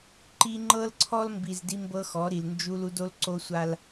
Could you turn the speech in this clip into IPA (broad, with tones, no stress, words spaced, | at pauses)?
ǃi˦ ŋ͡ǃɤ˦lǀʰɔ˦lmbi˨z di˦mbɤ˦xɔ˨˦ɾi˨l nd͡ʒu˦lu˦d o˦lǀo˦sʷa˦l